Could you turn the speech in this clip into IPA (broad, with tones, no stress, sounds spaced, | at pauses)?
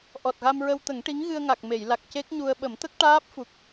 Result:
ʔ ɔ˨˩ t̚ ɣ a˧ m ɹ ə˧ w t̪ ə˨˩˦ ŋ ʈ i˧˥ ŋ ɣ ɨ˧ ə̯ ŋ a˨˩ k̚ m e˨˩˨ j l a˨˩ k̚ c e˦˥ k̚ ɲ u˧ ə̯ ɓ ə˨˩˦ m t̪ ə˦˥ k̚ ʈ aː˦˥ p̚ f u˨˩ k̚